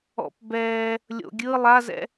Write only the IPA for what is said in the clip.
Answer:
ɔ̰ p b ɛː | lʲ o̰ ɡʲ ɯ lˠ a z ɛ̰

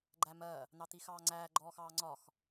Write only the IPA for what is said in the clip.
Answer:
ɡ͡ǃ æ m ɜ | n̪ ɑ t̪ i x ɑː ŋ͡ǀ æː ɡ͡ǃ ɔː x ɑː ŋ͡ǀ ɒ x

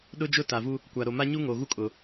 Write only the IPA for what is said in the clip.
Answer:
ɗ ʊ˦ d͡ʒ ʊ˦ t a˨ v u˦ | kʷ a˨ ɾ o˨ m a˦ ɲ u˦ ŋ o˨ ɣ u˦ kʼ ʊ˨

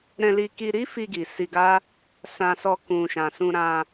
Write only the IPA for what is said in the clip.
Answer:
ɾ ɛ̃˧ l i˧ k i˧ ɾ i˦ f i˧ ɡ i˨ s i˧ ɡ a˦ | s ã˧ s ɔ˧ k ũ˨ ʃ ã˨ s ũ˧ ɾ ã˧

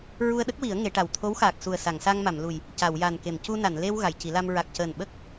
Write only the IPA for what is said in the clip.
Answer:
ɹ u˧ ə̯ ɗ ə˦˥ k̚ w i˨˩˦ ə̯ ŋ e˨˩˦ ʈ a˨˩ w t̪ʰ o˧˥ w x aː˨˩ k̚ s u˨˩ ə̯ s a˨˩˨ ŋ s a˧ ŋ m a˨˩˨ m l u˨˩ j | c a˨˩˨ w j a˨˩ n k e˨˩˨ m c u˧ n a˨˩˨ n l e˧ w ɣ a˨˩˨ j c i˨˩˦ l a˧ m ɹ a˨˩ k̚ c əː˨˩ n ɓ ə˦˥ k̚

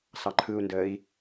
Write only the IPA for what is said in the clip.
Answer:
s ɑ ǃʰ ɯ u̯ n d əː i̯

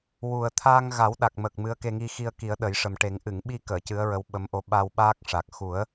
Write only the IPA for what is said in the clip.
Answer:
w u˨˩ ə̯ t̪ʰ aː˧ ŋ ɣ a˨˩˦ w ɗ a˨˩ k̚ m ə˨˩ k̚ m ɨ˧˥ ə̯ k e˧ ŋ i˧ x i˧ ə̯ k i˨˩˦ ə̯ ɗ ə˨˩˦ j ʂ ə˨˩ m ʈ e˨˩˦ ŋ ʔ ɨ˨˩˨ ŋ ɓ i˧ k əː˨˩˨ c ɨ˧˥ ə̯ ɹ ə˧˥ w ɓ ə˧˥ m ʔ o˧ ɓ a˧ w ɓ aː˦˥ k̚ ʂ a˨˩ k̚ x u˨˩˦ ə̯

